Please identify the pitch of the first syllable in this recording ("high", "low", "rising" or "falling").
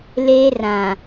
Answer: high